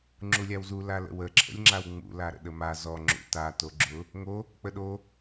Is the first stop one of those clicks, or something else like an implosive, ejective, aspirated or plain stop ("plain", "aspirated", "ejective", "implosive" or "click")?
click